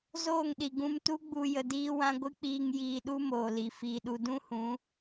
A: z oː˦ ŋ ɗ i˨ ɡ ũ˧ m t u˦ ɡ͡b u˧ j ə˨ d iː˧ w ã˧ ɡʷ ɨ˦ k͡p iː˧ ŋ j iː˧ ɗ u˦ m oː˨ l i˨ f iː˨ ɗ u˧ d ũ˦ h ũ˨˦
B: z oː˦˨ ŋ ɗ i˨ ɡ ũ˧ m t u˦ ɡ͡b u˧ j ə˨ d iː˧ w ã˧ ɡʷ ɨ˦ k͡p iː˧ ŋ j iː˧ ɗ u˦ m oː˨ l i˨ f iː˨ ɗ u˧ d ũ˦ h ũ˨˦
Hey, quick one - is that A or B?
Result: B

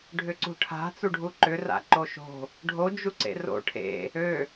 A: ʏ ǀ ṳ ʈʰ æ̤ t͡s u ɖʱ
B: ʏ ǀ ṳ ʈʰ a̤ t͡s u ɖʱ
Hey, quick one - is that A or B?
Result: B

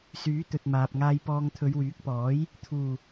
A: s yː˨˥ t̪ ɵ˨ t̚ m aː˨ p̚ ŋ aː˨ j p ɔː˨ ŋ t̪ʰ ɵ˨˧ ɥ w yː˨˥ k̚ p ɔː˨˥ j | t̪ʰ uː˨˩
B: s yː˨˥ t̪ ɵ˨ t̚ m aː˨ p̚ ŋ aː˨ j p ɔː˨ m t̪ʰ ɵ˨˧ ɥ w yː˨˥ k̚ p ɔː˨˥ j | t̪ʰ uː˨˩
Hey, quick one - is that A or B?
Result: A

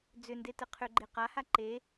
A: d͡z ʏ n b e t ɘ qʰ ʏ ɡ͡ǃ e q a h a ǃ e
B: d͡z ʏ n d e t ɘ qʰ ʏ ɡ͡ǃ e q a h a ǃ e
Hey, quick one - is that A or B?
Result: B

